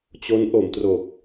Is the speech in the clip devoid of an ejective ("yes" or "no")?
yes